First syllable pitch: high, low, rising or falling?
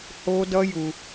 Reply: high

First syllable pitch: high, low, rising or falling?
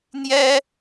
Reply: high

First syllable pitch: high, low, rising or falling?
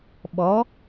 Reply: rising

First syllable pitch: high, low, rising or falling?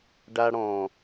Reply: high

